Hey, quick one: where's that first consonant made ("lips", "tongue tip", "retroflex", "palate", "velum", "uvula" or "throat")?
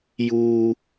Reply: palate